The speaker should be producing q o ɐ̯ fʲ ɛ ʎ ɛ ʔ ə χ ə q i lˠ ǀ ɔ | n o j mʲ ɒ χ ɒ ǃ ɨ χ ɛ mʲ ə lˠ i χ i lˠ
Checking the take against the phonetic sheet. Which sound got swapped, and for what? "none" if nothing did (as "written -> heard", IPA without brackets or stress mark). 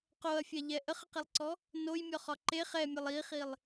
ɨ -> e